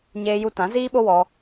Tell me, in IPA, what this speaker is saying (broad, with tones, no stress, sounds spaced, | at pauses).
ɲ eː˧ j u˧ t ã˨˦ z iː˦ ɓ o˦ w ɔ˧